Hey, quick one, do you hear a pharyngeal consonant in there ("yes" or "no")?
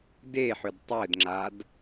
yes